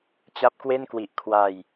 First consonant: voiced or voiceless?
voiceless